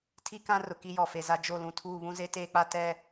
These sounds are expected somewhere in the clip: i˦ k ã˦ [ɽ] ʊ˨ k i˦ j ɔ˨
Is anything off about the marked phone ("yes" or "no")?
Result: yes